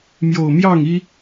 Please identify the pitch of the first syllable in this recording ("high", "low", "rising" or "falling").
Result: low